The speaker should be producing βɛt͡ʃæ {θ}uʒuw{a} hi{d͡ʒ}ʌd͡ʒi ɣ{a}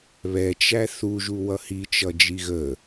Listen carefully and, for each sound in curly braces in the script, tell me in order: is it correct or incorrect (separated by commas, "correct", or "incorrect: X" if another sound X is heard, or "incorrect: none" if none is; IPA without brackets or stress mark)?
correct, incorrect: ʌ, incorrect: t͡ʃ, incorrect: ə